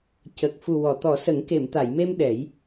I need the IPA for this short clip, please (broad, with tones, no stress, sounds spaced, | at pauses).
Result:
c ə˨˩ k̚ f u˨˩ w ɔ˨˩˨ t̪ ɔ˨˩˦ s ə˨˩˦ ŋ k e˨˩˨ m t̪ a˨˩˨ j m e˧ m ɗ ɛ˨˩˦ j